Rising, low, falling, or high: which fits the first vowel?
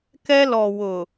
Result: high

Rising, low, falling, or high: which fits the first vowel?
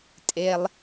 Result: low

